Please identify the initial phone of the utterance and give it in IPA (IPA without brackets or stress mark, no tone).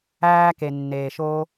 æː